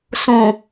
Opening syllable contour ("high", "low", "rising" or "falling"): low